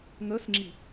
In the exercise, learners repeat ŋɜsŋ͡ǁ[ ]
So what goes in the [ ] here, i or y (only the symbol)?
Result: i